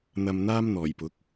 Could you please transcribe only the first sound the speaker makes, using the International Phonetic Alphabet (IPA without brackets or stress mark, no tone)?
n̪